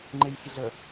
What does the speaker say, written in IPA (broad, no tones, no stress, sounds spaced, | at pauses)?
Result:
ŋ͡ǃ e j sʲ ə ɮ ə